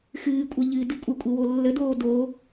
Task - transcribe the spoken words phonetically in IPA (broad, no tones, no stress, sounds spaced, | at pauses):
x ɨː kʷʼ ɛ ʎ ɨ d ɨ kʷʼ ə kʷʼ e w o lː ə d oː d o